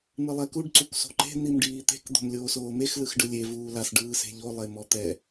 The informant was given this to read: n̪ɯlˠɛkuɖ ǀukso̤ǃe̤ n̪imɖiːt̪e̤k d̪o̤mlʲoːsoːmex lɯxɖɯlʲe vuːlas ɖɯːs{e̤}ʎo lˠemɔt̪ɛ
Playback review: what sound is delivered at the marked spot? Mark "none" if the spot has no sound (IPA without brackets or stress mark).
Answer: e̤